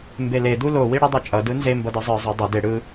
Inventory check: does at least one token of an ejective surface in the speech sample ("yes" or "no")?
yes